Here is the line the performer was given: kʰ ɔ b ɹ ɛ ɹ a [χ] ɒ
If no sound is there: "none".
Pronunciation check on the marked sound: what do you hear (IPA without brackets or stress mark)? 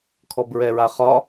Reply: χ